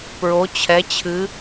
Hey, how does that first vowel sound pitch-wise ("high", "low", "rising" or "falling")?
rising